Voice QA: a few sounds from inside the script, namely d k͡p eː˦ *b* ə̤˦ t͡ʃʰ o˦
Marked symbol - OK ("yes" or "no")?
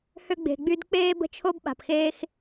yes